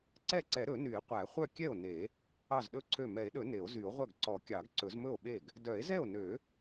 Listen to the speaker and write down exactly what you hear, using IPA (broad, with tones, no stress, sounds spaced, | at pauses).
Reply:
ǀ ɛ˥˩ ǀ ɛ˨˩˦ ɾ ɵ˨˩˦ n y˨˩˦ e̯ qʷ æ˨˩˦ χʷ œ˥˩ kʲ ɛ˥˩ o̯ n e˨˩˦ | ɑ˥˩ z ɗ ɵ˥˩ ǀʰ ø˥˩ m ɛ˨˩˦ e̯ ɗ ɵ˨˩˦ n e˨˩˦ o̯ z y˨˩˦ o̯ ʁʷ œ˥˩ ɡ ǀ ɔ˨˩˦ kʲ ɑ˨˩˦ ɡ ǀ ɵ˨˩˦ z m ɵ˥˩ o̯ ɓ e˥˩ ɡ | d œ˨˩˦ e̯ z ɛ˥˩ o̯ n ø˨˩˦